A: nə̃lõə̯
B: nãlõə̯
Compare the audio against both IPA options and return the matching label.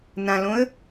B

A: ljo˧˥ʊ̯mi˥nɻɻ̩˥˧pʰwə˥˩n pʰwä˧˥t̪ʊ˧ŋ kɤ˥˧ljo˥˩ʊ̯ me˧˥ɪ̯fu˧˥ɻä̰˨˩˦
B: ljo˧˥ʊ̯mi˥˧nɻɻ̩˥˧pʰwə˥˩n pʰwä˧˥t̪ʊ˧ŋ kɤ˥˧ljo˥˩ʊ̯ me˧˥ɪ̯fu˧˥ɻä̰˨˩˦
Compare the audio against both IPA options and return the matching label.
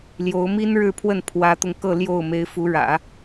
A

